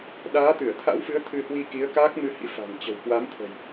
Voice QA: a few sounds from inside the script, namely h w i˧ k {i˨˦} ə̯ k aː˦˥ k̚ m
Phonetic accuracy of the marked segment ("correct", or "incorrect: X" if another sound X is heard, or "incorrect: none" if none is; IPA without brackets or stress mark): correct